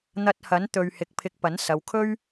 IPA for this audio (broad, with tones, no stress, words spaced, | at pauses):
n̪ɐ˧t̚hɐ˨˥n t̪ɵ˧ɥhɪ˧k̚ pʰɪ˧k̚pɐ˨˥n sɐ˨wkʰɵ˥ɥ